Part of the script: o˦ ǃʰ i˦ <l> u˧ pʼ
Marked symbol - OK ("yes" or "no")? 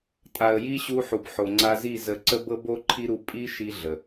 no